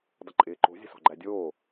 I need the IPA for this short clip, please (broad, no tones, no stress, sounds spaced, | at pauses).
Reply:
dˤ ə ǃʼ ɪː ǃ o̤ zʲ ə̤ s ɔ̤ ɡ͡ǃ æ dʲ oː